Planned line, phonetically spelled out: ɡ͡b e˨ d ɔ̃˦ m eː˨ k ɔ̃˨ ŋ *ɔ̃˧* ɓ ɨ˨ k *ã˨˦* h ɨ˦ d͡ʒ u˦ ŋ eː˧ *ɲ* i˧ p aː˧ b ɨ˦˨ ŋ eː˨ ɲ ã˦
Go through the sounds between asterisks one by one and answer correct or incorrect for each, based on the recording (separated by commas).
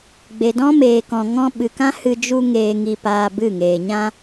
correct, incorrect, incorrect